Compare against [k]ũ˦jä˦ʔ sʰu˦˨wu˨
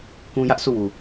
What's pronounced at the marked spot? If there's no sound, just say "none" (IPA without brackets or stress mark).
k